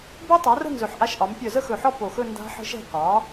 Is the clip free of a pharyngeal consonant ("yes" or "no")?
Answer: no